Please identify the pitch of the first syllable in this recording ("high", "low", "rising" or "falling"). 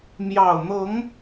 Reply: low